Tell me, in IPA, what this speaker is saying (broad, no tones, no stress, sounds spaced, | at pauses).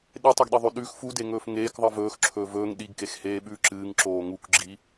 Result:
ɗ e tˤ ɵ ɡ ɗ i ðˤ ʉ ɗ ʉ x f u d e ŋ ɵː f ŋ eː k ðˤ ɨ v ɵː x ǁʰ ɵː v ɵː ŋ ɗ i ɡ k e x h eː ɓ ʉː ǁ ɨː ŋ ǁ oː ŋ u k ɡ͡ǁ i